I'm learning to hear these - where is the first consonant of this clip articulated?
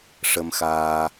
retroflex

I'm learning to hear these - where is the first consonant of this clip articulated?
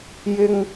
palate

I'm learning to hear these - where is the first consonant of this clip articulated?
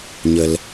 palate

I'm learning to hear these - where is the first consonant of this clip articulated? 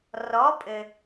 tongue tip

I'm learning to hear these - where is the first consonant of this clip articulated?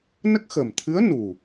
tongue tip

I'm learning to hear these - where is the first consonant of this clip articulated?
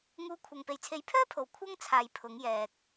velum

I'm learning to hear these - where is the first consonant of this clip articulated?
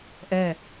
throat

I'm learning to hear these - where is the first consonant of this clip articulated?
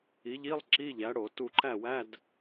palate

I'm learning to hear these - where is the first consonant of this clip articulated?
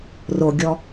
tongue tip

